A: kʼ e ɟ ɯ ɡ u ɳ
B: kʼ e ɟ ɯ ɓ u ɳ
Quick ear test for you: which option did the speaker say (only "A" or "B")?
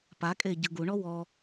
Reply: A